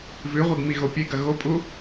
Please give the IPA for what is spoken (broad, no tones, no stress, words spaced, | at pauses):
vʉʁʷeɡmiɣo pʲeɡɐ ɣopʼu